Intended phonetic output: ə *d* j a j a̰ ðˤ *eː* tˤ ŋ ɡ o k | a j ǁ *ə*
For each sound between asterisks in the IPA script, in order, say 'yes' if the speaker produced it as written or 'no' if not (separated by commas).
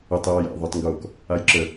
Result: no, no, yes